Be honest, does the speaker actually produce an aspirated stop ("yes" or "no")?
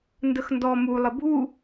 no